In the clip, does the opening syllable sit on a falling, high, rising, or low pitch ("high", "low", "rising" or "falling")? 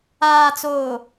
low